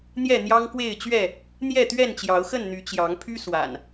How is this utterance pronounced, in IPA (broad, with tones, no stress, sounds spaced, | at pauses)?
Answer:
n̪ j ɛ˥˨ n̪ j ɑ˦ ŋ k w e˥˨ ɪ̯ t͡ɕ ɥ ɛ˥˨ | n̪ j ɛ˥˨ t̪ ɥ ɛ˥˨ n t͡ɕ j ɑ˨˦ ʊ̯ x ə˥˨ n n̪ y˨˦ t͡ɕ j ɑ˨˦ ŋ pʰ y˦ s w a̰˨˩ n